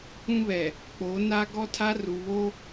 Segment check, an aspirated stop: present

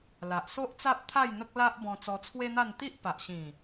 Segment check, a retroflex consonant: absent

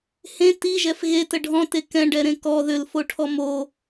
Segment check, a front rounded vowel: present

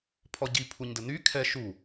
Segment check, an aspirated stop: present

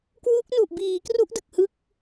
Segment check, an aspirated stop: absent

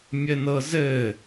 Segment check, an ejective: absent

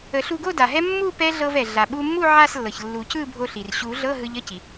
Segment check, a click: absent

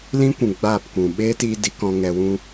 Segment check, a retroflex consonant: absent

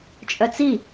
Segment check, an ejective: present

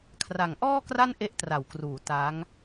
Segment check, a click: absent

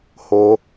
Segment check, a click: absent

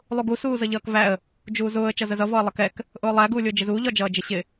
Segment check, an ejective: absent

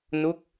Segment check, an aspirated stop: absent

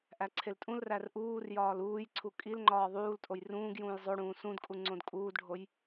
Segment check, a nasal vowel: present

